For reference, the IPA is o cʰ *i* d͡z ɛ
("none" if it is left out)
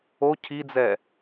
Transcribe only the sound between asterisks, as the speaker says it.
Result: i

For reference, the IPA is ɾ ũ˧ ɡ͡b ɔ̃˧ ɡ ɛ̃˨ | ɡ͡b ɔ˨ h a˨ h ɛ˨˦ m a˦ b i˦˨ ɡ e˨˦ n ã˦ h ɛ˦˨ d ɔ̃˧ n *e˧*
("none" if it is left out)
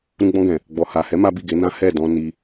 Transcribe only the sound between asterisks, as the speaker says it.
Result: i˧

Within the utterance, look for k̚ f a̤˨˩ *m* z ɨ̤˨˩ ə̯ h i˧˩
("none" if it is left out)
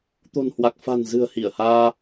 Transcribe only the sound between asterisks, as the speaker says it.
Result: n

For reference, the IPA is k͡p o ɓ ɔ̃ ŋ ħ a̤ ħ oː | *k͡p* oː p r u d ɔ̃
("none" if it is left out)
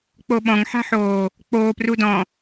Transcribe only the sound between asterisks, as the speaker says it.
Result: k͡p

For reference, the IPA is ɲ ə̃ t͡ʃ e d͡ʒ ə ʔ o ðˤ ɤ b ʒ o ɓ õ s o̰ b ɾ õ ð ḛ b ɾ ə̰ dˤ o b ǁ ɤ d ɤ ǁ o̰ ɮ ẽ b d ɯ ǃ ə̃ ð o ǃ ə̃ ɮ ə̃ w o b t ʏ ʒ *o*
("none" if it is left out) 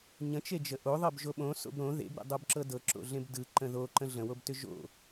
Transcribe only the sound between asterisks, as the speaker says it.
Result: o̰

